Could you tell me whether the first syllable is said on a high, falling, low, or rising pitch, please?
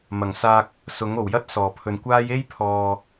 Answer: low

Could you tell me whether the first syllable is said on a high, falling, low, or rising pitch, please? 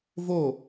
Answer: falling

